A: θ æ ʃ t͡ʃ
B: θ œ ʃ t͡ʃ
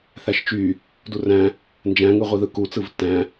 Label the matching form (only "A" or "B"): A